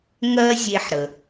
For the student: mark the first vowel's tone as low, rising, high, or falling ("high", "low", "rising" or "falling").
high